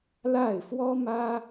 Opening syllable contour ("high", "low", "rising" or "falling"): falling